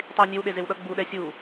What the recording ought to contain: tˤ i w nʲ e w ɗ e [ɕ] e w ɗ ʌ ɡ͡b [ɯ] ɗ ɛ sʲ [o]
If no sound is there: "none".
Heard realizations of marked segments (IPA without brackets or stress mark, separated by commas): z, u, u